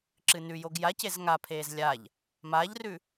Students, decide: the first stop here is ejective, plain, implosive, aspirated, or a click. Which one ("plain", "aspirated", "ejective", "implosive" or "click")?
click